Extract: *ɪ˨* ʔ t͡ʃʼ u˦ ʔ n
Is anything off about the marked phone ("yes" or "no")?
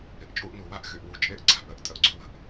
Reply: no